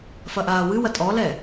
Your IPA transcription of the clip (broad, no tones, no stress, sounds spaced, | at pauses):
f ɐ ʔ aː w ɨ w ɐ tʼ ɔ l ɛ